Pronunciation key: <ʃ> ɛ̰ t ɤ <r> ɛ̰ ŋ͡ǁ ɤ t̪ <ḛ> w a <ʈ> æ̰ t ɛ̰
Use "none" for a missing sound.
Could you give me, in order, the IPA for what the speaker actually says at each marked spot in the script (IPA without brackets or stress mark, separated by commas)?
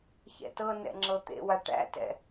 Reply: ç, n, ḛ, ʈ